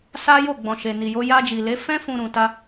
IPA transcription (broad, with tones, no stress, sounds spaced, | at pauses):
s a˦ j o˦˨ ɡ͡b ɔ̃˨ ʃ e˨ n i˨ j o˧ j a˧ d͡ʒ i˨ l e˨˦ f ɛ̃˦ f ũ˧ ɾ ũ˨ t a˧